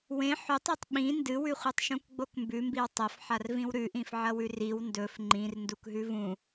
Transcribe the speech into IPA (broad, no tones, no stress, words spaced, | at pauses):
wẽ ħɵtˤotˤ ɓĩ ndɨwʉχʷitˤʃũk ɡ͡bokmbʉmbiw tˤɐfħarvĩw ɾʉʔĩfʕɐwʉ riw ndɵf ŋ͡ǃĩr ndukɦʉvũ